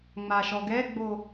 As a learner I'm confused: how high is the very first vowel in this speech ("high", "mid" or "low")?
low